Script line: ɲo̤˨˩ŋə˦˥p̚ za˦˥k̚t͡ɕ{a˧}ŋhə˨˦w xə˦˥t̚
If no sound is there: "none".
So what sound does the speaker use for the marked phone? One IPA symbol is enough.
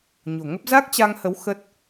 a˧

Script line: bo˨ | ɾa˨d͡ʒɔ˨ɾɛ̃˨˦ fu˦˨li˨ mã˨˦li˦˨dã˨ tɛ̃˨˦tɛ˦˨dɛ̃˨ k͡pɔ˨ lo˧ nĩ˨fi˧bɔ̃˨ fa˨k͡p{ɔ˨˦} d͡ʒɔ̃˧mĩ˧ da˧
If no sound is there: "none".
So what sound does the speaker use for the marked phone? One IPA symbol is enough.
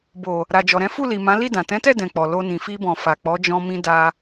ɔ˨˦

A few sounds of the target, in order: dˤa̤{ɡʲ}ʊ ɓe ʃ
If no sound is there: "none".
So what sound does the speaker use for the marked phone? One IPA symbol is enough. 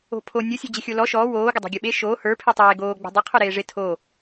ɡʲ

